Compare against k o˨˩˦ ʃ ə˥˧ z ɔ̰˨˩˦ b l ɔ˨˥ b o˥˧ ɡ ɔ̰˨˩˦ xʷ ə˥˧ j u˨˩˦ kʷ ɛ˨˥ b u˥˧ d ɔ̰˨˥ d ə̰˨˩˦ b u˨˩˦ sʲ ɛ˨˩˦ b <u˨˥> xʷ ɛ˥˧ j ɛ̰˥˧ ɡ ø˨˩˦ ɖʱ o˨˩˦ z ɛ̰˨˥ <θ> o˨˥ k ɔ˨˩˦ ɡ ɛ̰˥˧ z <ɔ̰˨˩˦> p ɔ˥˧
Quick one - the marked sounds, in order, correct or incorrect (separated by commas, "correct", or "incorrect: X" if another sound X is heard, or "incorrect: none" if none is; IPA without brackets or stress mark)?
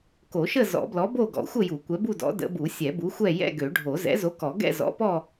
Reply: correct, incorrect: z, incorrect: ɔ̰˨˥